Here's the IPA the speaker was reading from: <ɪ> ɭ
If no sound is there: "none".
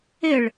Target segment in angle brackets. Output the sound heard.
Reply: ɪ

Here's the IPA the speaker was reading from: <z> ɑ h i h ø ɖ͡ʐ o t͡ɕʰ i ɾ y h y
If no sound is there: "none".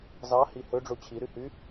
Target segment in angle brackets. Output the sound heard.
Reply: z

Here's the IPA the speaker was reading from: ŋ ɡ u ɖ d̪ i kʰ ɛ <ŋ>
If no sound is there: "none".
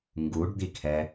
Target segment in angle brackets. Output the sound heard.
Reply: none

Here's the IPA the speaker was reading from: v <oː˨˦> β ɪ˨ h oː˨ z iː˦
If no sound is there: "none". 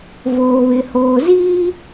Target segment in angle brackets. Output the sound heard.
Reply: oː˨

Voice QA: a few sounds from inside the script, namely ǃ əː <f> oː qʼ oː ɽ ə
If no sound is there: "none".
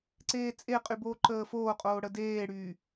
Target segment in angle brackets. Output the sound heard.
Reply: f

